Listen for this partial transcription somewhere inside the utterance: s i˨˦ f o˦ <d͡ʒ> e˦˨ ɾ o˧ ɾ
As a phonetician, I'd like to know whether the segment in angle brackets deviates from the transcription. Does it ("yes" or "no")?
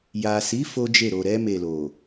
no